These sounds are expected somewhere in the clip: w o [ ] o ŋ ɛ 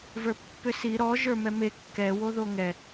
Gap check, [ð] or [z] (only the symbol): ð